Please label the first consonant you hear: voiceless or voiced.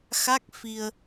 voiceless